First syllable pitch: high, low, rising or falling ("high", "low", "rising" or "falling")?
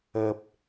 low